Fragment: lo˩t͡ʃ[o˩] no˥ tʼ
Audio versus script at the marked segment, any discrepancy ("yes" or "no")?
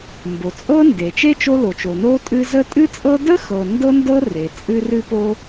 no